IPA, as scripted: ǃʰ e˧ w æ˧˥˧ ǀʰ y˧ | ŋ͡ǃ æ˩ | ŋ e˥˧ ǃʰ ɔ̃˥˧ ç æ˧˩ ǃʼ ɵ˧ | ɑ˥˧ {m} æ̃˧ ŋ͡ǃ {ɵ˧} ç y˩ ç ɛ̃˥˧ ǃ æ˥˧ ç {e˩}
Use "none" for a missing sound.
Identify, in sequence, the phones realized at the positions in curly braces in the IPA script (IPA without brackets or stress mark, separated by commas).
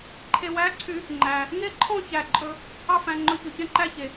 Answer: f, ɵ˧, e˩